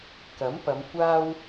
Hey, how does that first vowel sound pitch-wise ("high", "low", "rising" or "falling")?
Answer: rising